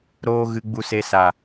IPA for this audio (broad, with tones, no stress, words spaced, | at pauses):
ɾoː˦ ɣɨ˧ɡ͡bu˧se˧ sa˨